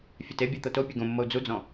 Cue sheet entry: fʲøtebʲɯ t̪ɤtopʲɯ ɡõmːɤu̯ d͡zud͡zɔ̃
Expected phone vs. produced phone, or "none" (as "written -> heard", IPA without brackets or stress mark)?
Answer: ø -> ɛ